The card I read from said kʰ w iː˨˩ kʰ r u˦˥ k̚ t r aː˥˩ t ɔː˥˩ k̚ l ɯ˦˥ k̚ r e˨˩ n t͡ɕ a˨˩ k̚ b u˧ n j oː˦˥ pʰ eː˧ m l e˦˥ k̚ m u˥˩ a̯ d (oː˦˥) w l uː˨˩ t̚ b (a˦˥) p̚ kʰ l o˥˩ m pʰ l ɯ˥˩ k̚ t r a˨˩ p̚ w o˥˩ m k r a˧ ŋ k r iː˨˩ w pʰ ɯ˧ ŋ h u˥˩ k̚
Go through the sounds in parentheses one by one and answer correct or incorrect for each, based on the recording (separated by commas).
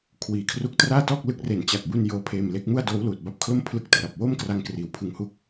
correct, correct